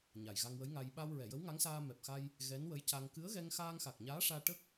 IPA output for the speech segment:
ɲa˨˩jɣa˧ŋwə˧˥jŋa˧j ɓa˧w ɹɛ˨˩˨jə˧˥wŋa˧˥ŋsaː˧ mɛ˨˩p̚xa˧j | ɣɛ˧˥nwə˧˥jca˧ŋ kɨ˧˥ə̯ɣɛ˧ŋ xaː˧ŋxa˨˩k̚ ɲaː˧˥ʂaː˧ ʈə˦˥k̚

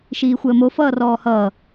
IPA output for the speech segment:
ʃiːxʷəːmo fʌːrɔːhʌː

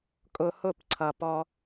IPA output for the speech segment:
kʼʊ˧hʊ˦˨pǀʰʌ˨pɔ˧

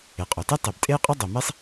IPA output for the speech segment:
e˩qʼœ˩te˥ tˤe˩btʼe˥j qʼe˥dˤo˩me˥sˤ

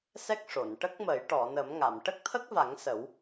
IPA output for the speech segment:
sɛ˦˥k̚ʂo˨˩˨n ʈə˦˥k̚mə˨˩˦jʈɔ˨˩˨ nə˨˩˦mŋa˨˩˨m ʈə˦˥k̚t̪ʰə˦˥k̚va˨˩˦ŋ sə˨˩˦w

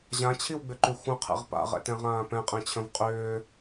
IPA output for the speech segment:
ʑãt͡ɕʰiwɡ͡bʏǃy xʷə̃qʰɛ̰ʁ pa̰ʁɛ̰tɛ̃ʁãː pɛ̃qʼɛ̃t͡ɕʰə̃v qʼʏː

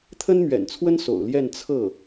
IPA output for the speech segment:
t̪ʰə˥nmɥɛ̰˨˩nt͡sʰwə˥n so̰˨˩ʊ̯ljɛ˥˧n t͡sʰɤ˥˩

